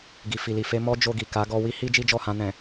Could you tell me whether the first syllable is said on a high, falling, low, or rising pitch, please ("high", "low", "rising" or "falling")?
low